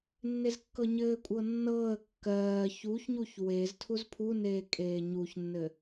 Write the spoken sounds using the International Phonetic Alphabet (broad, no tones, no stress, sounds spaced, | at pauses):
nː e z kː ɤ ɲ ɘː kʷʼ ɤ nː ɤː ə̯ kː ɜː ç u ç ɲ u ç w e z tʰ u z pʰ u n eː kʼ eː ɲ u ç nː ɘ